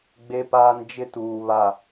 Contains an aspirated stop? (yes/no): no